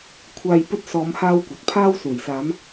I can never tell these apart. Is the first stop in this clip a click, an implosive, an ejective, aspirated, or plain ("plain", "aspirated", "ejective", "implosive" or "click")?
aspirated